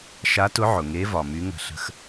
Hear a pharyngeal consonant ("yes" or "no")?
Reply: yes